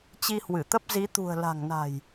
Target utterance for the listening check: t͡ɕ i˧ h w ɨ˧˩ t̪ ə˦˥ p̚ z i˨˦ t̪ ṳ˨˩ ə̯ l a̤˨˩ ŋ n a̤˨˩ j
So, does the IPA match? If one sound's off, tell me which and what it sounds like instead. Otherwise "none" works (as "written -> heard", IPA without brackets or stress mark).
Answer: none